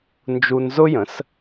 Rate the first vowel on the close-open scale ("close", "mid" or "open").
close